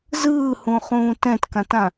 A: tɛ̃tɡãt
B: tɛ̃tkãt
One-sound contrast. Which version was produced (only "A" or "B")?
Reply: B